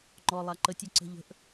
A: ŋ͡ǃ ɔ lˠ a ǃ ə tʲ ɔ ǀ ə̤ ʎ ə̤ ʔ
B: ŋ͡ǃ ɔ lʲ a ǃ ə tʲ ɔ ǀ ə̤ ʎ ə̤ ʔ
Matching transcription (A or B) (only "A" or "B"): A